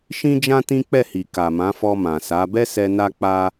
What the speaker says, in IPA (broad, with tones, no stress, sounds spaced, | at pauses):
ʃ ĩ˦ d͡ʒ ã˦ t ĩ˦ k͡p ɛ˦˨ h i˨ k a˨ m ã˨˦ f ɔ˧ m ã˨ s a˨˦ b ɛ˦ s ɛ˧ n a˦ k͡p a˦